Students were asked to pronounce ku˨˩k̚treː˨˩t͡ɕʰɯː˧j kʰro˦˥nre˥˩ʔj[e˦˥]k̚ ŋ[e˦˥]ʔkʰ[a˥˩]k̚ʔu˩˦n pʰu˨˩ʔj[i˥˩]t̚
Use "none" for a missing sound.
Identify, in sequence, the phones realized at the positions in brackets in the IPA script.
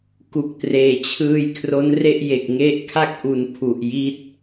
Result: e˨˩, e˦˥, a˥˩, i˦˥

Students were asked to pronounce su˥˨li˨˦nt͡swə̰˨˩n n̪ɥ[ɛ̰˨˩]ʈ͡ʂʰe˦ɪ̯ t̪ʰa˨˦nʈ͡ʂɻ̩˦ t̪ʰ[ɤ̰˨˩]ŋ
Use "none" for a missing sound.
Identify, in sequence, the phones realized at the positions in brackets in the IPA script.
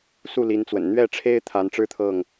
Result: ɛ˥˨, ɤ˥˨

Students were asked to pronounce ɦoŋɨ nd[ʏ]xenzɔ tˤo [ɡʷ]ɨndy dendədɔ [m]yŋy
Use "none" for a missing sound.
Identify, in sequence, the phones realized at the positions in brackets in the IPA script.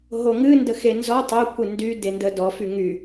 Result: ə, kʷ, f

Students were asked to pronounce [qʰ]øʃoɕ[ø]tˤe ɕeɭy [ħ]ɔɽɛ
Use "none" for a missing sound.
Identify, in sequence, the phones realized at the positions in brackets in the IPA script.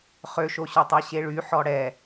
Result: χ, ø, ħ

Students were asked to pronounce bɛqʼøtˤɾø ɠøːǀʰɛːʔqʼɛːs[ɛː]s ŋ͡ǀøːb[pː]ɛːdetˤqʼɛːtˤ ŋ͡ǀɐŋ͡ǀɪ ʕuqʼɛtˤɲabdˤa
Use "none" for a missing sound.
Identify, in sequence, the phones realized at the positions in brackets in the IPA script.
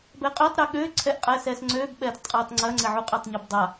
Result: ɛː, ɓ

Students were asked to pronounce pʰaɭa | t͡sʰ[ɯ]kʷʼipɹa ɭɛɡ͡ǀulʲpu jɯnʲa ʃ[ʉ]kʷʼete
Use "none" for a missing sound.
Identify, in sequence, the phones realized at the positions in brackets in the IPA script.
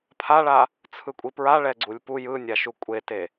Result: ɯ, u

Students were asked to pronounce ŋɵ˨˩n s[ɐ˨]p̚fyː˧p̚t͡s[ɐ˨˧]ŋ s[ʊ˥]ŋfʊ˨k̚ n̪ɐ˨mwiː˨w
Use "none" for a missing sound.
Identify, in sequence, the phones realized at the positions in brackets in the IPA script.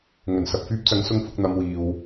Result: ɐ˨, ɐ˨˧, ʊ˨˧

